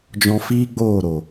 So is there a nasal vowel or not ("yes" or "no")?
yes